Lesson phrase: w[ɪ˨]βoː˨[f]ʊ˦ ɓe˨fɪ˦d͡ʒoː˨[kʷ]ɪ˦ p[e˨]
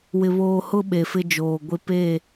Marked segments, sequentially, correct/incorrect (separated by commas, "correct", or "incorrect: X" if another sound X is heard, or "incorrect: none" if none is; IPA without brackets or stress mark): correct, incorrect: h, incorrect: ɡʷ, incorrect: e˦˨